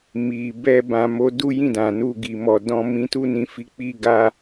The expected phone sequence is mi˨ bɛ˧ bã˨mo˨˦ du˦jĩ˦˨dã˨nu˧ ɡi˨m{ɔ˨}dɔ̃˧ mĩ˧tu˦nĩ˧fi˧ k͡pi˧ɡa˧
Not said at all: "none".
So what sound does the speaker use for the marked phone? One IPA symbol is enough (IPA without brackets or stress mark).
ɔ˨